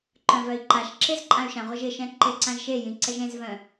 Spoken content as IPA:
ǃœ̃vœi̯ǃaʃǁez ǃʼãy̯ʃãʁʷəʒ ɪʃɛ̃ ǃeǀãʒʃejĩ ǀɛʒẽzvœ̃

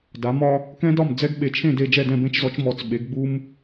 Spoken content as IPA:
da˩˥mɒ˦ | kɛ̃˦dɒ˥˩m d͡zɛ˦ɡ ɓe˩˥t͡ʃʰẽ˥˩de˥˩ d͡ʒɛ˥˩dɛ̃˥˩bẽ˦t͡ʃzɔ˩˥t͡ʃ mɔ˩˥t͡s ɓe˩˥ɡɡ͡bu˦m

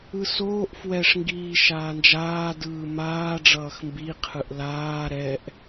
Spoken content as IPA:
ɯsoːʔ fwɛʂ ŋɡiːʃaːnd͡ʒaː dɯːmaː ɖ͡ʐʌːxmbi qʰɯʔlaː ɾɛʔ

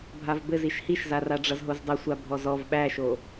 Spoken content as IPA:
bʱavbɘz iʃhiʃzara ɖ͡ʐʌzɦozdˤʌsʷa bʱɔzɔv ɓæʃo

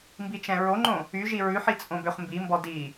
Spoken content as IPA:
mbit͡ʃɛ̃ɹoŋ͡ǃõ | yʒi ɹʉħi t͡sʼõbøχmbimbɔ di

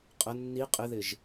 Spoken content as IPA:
qʼə nːi qʼɪðɪʒ

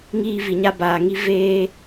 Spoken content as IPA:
ŋiː˦vi˨ɲa˦ baː˨ ŋi˦ veː˦

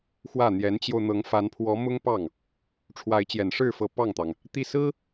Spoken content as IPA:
xwä˥˩n̪jɛ˧˥nt͡ɕjo˧ʊ̯ n̪ɤ˧˥ŋfa˧˥npʰwɔ˧˥ mʊ˥ŋpɑ˥˩ŋ | ʈ͡ʂʰwa˧˥ɪ̯t͡ɕjɛ˨˩nʂɻ̩˥˩fɤ˧˥ pɑ˥˩ŋt̪ɑ˩ŋ | t̪i˥˩sɹ̩˥

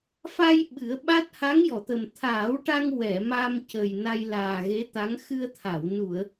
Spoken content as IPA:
fa˧j ɓɨ˨˩˦ə̯ɓa˦˥t̚ ha˧˥ŋjɔ˨˩˨t̪ə˨˩m t̪ʰaː˨˩˦wʈa˧ŋ wɛ˨˩˨ ma˧mcə˨˩j na˧jlaː˨˩ɣe˧˥t̪a˧˥ŋ xɨ˧ə̯t̪ʰa˨˩˨w nu˨˩˨ə̯

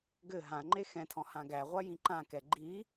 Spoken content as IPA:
ɡɘ ɦãŋ͡ǃe xɛ̃tʰɔ̃ hãɡæʁʷa jĩǃãkɛ ɡ͡ǃi

